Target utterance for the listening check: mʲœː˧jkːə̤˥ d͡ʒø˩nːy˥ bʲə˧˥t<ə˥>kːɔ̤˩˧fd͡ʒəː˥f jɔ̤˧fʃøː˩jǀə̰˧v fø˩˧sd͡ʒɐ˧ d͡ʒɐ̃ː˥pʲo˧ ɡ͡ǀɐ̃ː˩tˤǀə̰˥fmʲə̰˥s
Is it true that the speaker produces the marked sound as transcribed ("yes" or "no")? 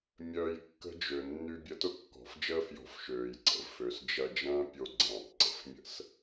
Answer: no